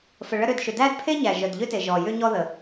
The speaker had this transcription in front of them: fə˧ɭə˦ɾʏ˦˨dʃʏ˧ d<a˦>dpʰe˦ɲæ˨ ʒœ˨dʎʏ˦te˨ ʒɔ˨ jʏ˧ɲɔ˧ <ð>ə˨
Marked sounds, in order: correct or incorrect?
incorrect: æ˦, correct

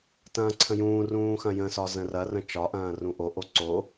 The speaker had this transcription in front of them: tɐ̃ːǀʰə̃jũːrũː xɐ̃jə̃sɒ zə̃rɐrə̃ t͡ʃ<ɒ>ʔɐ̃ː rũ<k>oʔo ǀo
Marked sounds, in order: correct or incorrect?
correct, incorrect: ʔ

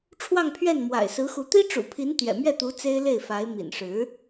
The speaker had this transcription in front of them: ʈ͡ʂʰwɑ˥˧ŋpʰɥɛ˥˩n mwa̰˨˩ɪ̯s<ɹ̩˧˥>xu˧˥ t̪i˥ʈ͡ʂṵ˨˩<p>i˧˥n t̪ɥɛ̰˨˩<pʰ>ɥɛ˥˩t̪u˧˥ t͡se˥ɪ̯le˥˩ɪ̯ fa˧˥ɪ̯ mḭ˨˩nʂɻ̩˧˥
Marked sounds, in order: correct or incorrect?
correct, incorrect: pʰ, incorrect: m

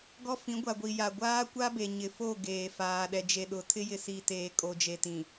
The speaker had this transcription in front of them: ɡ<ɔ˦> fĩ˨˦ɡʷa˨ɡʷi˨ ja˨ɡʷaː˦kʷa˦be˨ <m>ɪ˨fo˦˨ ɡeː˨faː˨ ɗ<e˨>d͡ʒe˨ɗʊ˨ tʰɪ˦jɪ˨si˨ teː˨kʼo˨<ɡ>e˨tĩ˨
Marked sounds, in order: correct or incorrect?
correct, incorrect: ɲ, incorrect: ɛ˨, incorrect: d͡ʒ

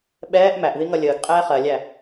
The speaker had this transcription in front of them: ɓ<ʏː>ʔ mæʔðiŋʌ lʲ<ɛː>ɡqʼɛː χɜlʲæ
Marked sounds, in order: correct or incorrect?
incorrect: ɛː, incorrect: əː

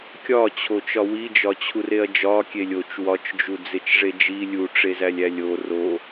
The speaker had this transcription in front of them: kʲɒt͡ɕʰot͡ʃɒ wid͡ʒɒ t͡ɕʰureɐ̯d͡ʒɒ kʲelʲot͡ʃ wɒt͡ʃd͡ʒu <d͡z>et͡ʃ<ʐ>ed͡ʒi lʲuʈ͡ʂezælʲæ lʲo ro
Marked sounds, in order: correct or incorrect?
correct, correct

